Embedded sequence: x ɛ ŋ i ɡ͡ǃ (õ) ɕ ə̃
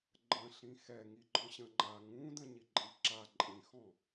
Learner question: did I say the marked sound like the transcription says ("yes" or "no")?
no